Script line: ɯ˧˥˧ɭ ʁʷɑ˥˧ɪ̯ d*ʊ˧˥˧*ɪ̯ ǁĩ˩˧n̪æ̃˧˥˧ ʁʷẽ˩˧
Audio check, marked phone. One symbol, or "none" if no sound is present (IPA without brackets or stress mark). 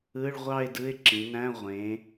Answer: ɯ˧˥˧